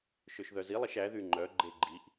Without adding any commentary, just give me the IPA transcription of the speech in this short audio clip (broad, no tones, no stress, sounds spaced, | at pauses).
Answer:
ʃ ø ʃ ð œ z i lˠ i ʃ æ ð y ŋ͡ǃ œ ɡ͡ǃ e ɡ͡ǃ i ʔ